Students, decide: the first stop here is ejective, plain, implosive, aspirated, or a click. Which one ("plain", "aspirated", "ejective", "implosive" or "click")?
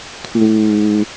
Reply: aspirated